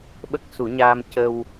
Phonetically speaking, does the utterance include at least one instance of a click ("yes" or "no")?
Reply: no